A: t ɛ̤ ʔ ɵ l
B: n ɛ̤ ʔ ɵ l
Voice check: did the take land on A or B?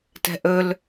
A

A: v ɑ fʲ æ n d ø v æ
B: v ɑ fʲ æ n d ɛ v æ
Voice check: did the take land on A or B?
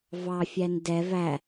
B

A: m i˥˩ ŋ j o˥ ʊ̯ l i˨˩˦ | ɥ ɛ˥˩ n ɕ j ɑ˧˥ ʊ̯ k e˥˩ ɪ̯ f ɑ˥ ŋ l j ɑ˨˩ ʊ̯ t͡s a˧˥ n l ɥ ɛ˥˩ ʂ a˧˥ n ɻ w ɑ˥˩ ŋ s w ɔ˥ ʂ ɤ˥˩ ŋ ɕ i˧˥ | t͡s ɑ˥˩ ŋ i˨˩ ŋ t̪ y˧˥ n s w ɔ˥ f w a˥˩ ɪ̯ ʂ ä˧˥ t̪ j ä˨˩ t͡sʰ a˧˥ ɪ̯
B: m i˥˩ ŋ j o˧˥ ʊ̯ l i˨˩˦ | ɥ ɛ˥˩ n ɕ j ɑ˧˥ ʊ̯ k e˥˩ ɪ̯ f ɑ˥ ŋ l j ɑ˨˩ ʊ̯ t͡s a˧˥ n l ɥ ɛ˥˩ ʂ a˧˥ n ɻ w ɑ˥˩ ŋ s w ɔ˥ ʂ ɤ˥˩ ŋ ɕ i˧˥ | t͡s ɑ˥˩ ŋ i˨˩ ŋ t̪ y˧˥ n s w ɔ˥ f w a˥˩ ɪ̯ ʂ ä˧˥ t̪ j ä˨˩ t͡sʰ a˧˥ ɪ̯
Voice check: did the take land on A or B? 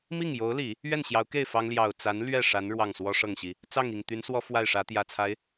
B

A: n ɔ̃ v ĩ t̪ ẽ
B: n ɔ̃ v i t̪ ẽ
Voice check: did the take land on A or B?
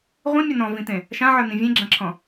A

